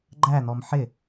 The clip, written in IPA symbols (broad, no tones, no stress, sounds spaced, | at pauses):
ɡ͡ǃ æ n̪ ɔ m ħ ɪ